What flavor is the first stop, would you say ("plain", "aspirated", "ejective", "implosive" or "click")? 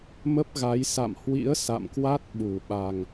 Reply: plain